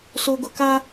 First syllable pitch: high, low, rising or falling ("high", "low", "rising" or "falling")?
low